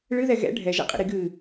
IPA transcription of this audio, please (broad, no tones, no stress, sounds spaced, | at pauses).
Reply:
ɭ ɨ ð ɛ ɣ ɛ̰ ɖʱ ɛ ʒ ɛ̰ qʼ ḭ ɾ i ɡ ɨ